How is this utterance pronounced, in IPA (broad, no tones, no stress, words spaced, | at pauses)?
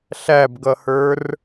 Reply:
ɬæbɡʌhə˞r